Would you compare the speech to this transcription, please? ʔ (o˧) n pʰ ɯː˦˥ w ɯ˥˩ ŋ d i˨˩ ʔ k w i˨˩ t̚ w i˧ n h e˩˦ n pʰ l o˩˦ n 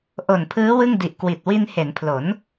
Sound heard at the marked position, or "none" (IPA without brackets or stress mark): o˨˩